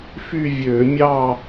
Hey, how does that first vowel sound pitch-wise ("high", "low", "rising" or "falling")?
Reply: falling